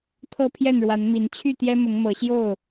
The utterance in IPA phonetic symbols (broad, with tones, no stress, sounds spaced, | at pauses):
t̪ʰ ɤ˥˨ pʰ j ɛ˥˨ n ɻ w a˨˦ n m i˨˦ n t͡ɕʰ y˥˨ t̪ j ɛ˦ m ʊ˨˦ ŋ m ɤ˨˦ ɕ j o˥˨ ʊ̯